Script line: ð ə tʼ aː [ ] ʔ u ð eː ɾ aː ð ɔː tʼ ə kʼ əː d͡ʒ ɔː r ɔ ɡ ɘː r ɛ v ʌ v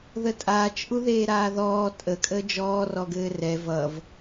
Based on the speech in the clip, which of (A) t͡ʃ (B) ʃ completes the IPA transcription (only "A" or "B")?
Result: A